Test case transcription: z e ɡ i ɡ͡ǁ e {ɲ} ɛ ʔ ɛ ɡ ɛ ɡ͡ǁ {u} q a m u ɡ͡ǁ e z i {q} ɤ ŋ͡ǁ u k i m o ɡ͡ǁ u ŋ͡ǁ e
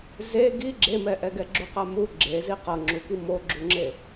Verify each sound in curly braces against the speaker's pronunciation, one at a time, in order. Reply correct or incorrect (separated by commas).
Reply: incorrect, correct, correct